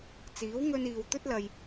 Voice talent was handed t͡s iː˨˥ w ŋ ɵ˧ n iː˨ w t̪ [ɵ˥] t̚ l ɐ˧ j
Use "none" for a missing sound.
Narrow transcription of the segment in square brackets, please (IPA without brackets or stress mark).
ɵ˥